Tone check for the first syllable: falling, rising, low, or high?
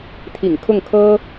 low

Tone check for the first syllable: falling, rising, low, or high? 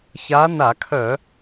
rising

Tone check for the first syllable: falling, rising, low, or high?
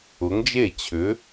rising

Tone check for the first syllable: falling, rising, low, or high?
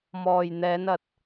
low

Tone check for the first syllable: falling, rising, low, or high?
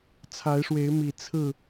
rising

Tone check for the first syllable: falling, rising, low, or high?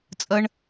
high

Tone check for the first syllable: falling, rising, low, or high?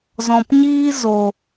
low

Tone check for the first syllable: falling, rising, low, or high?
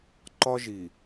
high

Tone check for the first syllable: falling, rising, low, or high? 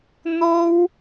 high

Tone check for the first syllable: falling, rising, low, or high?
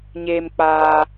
high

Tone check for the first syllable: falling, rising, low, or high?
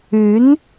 rising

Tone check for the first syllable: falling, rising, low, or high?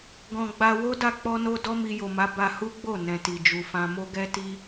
low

